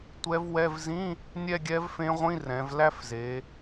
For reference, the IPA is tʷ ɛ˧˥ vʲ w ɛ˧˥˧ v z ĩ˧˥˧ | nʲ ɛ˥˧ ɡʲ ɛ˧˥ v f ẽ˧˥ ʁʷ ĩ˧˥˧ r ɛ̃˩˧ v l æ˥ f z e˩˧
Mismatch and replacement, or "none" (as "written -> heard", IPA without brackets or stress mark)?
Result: vʲ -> v